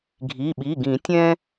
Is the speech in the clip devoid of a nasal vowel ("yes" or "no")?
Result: no